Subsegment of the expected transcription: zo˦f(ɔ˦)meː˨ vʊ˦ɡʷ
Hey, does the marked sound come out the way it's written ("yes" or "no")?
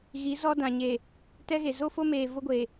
no